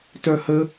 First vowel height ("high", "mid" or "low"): mid